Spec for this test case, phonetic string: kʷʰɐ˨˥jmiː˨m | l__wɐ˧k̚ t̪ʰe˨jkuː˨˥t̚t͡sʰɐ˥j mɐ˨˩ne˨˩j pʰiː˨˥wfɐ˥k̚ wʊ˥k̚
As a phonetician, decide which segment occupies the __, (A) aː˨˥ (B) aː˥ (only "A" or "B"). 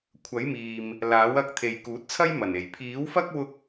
A